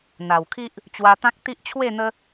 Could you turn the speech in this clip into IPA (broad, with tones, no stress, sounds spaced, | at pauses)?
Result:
n̪ a˨˩ w kʰ i˦ ʔ | t͡ɕ w a˧ t̪ ã˦ k̚ t̪ i˦ ʔ t͡ɕʰ w e˥˧ n̪ ə˦